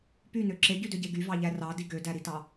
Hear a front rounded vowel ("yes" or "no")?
yes